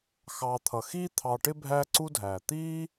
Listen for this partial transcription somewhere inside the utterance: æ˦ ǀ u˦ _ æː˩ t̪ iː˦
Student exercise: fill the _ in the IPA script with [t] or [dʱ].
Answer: dʱ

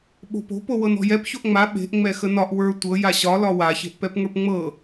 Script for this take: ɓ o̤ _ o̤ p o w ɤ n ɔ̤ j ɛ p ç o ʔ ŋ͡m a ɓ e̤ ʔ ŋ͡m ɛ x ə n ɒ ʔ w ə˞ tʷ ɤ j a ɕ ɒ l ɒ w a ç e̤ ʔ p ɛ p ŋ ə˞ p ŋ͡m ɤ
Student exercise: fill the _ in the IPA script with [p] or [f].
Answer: p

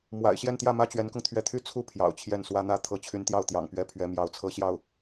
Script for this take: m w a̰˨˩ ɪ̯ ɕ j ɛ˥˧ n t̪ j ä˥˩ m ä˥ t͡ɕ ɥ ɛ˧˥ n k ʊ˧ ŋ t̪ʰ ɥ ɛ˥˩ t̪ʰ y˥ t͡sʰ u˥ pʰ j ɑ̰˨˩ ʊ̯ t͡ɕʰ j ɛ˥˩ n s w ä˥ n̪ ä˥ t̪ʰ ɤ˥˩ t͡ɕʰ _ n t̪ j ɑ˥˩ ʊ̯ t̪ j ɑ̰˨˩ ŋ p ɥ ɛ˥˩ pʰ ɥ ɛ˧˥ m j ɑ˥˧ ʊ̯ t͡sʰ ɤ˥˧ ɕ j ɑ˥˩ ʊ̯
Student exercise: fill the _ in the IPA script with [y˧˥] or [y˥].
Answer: y˧˥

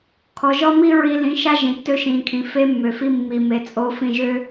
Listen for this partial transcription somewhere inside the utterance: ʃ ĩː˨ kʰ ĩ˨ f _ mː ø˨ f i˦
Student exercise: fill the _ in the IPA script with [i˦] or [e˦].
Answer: e˦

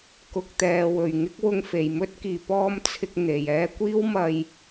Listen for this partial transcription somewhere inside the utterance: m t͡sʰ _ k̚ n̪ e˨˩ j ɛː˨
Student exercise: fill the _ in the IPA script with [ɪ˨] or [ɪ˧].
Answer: ɪ˨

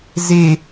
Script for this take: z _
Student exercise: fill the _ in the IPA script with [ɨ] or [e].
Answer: e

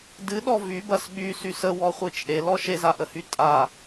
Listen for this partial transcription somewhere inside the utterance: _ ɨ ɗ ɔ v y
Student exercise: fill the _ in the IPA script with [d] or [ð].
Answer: d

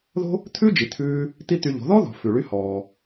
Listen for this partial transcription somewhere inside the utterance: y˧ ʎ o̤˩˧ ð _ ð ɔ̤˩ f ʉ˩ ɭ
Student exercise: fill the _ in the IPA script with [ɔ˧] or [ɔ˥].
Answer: ɔ˥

